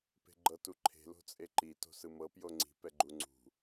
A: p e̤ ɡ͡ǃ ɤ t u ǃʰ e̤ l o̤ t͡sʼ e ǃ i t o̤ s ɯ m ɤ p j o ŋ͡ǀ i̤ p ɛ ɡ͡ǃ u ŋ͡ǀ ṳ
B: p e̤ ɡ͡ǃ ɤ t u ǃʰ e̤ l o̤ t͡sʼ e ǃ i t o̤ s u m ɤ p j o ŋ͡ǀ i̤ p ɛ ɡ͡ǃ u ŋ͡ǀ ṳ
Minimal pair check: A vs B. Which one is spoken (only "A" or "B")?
A